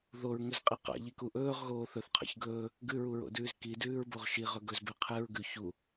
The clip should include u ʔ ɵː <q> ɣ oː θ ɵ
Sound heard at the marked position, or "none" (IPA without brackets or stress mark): ʁ